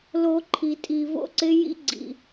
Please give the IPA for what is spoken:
lo˦ ǃʰi˧tʼi˧ vo̰˦ǀɪ˦ jḭ˦ ɡ͡ǀḭ˧

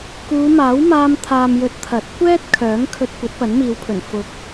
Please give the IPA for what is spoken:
kuː˨˧maː˨˥wmaː˧m t̪ʰaː˨mjɵ˨˥t̚ t̪ʰɐ˨˥t̚ kʷɛː˥t̚ kʰœː˨˥ŋkʰɵ˧t̚ kʷɐ˨˥t̚pɐ˨˥nmiː˨˧wpʰɵ˨˩n fʊ˨˥k̚

